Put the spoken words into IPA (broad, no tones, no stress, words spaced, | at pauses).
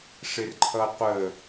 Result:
ʂɪrǃʰʌqʷə